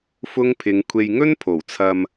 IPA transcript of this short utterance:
f ʊ˥ ŋ pʰ ɪ˨˧ ŋ kʷʰ e˨ j ŋ ɵ˥ n pʰ o˨˩ w t͡sʰ ɐ˧ m

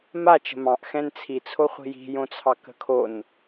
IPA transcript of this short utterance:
m a t͡ʃ ə̤ m ɑ̃ ʔ x ɛ̃ n t͡sʰ i t͡sʰ o χʷ i̤ j i̤ j õ t͡sʰ ɑ k ə̤ kʰ o n

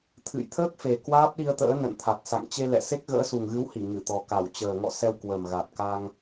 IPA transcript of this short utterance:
t̪ʰ ɨ̰˧˨ j t̪ʰ əː˦˥ k̚ f e˨˩ k w aː˦˥ p̚ ɗ i˧ ə̯ t̪ ə̰ː˧˥ n ə̰˧˨ n t̪ʰ a˨˩ t̚ s a̰˧˨ ŋ t͡ɕ e˧ l ɛ̰˧˨ s e˦˥ k̚ ɣ ə̰ː˧˥ s u˨˩ ŋ ɣ ɨ˨˦ w h i˧˩ ŋ ɨ˧˩ t̪ ɔ˨˩ k a˧˩ w t͡ɕ əː˨˩ ŋ ɔ̰˧˨ s ɛ˧ w k w ə˨˩ m ɣ a˨˩ t̚ k a˧ ŋ

